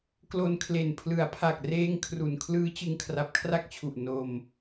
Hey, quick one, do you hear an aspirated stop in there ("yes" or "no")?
yes